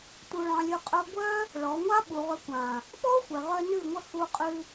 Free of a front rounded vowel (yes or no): no